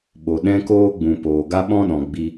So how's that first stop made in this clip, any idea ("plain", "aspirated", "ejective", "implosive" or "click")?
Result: implosive